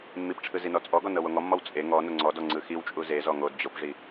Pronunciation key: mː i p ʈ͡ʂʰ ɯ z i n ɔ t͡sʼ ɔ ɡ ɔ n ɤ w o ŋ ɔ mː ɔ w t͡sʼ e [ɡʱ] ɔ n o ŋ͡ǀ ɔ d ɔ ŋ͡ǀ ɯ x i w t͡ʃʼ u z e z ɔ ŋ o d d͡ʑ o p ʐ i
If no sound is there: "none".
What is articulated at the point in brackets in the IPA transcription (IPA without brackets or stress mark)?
ŋ